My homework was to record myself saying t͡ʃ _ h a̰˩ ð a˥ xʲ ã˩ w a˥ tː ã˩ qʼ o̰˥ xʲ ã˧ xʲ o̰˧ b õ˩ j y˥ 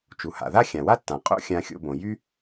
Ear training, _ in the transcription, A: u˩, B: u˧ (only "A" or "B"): A